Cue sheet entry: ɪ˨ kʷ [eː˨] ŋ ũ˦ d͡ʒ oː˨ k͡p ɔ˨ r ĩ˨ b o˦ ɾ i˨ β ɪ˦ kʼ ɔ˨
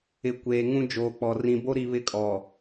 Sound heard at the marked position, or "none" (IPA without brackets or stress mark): eː˨